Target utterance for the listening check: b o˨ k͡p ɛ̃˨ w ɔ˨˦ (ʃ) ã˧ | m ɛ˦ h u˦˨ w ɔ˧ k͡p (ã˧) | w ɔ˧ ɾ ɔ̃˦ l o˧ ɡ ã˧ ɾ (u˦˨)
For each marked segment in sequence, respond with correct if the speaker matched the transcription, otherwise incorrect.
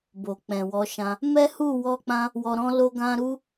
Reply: correct, correct, incorrect

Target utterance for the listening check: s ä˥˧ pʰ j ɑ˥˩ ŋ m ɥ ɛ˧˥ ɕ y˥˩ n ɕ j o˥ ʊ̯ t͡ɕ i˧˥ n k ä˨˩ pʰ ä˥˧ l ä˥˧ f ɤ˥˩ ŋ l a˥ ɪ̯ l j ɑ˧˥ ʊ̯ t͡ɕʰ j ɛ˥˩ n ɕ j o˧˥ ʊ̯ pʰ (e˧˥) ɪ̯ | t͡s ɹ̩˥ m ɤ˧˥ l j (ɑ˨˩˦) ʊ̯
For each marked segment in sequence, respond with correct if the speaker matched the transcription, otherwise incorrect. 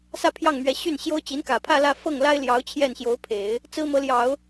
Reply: incorrect, correct

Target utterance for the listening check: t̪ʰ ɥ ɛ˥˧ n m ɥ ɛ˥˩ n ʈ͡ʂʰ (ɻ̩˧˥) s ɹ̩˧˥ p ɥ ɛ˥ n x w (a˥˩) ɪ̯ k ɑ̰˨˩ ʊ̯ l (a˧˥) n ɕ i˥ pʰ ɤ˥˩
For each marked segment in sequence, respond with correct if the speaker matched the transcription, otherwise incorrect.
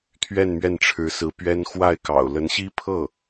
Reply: correct, correct, incorrect

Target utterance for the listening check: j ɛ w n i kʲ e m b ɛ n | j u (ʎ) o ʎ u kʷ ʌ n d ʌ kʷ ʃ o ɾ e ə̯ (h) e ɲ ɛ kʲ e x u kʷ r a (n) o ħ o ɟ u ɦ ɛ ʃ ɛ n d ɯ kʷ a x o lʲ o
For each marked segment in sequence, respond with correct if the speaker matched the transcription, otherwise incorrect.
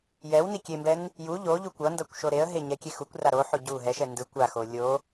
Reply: correct, incorrect, incorrect

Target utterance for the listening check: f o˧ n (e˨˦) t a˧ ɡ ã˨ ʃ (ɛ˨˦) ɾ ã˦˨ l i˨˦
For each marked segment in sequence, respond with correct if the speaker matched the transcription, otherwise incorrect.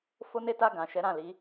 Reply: incorrect, correct

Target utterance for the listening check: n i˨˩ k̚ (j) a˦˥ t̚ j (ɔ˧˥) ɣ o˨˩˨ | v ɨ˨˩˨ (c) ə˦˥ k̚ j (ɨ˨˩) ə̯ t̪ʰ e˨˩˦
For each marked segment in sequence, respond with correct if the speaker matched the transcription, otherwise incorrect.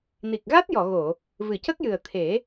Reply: incorrect, incorrect, correct, correct

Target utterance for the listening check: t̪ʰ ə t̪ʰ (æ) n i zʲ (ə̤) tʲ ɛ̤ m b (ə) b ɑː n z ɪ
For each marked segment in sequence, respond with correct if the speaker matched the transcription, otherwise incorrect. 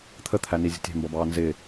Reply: correct, correct, incorrect

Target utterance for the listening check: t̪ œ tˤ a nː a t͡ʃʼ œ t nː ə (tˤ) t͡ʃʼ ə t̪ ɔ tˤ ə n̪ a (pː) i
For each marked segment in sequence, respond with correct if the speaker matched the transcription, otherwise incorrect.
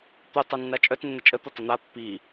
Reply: incorrect, correct

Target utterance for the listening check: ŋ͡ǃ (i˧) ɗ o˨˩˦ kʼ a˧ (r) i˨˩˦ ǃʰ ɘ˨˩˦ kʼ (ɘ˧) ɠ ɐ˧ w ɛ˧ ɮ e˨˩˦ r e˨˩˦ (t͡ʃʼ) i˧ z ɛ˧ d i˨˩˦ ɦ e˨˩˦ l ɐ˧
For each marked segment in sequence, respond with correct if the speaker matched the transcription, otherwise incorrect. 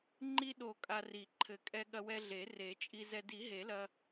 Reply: correct, correct, incorrect, correct

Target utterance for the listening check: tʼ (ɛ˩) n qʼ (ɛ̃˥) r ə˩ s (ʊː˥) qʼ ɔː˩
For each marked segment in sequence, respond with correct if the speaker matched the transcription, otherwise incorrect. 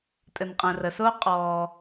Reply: incorrect, incorrect, correct

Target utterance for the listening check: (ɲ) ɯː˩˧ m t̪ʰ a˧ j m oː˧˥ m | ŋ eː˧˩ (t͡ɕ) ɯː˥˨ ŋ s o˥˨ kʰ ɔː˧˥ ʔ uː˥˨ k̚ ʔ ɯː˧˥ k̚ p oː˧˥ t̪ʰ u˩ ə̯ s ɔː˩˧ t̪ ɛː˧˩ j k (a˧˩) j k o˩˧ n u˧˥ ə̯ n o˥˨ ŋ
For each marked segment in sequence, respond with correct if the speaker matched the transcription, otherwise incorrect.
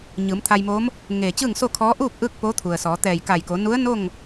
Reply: correct, correct, correct

